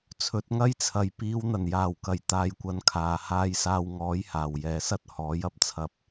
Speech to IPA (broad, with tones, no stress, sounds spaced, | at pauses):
t͡sʰ ɵ˨˥ t̚ ŋ ɐ˥ j t͡sʰ ɐ˨ j p iː˨˧ w n̪ ɐ˨˩ n j aː˨˩ w k ɐ˨˩ j t̪ aː˧ j kʷ ɐ˧ n kʰ aː˨ h aː˧ j s aː˧ w ŋ ɔː˨˥ j h aː˨˩ w j ɛː˨ s ɐ˥ t̚ h ɔː˨˥ j ɐ˥ p̚ t͡sʰ ɐ˧ p̚